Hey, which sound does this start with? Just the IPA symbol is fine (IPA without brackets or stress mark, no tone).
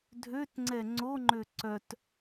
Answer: dʱ